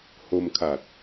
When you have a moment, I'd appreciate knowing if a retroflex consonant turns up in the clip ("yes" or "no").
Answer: no